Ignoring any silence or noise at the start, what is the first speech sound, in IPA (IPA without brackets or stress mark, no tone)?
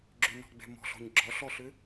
ɡ͡ǁ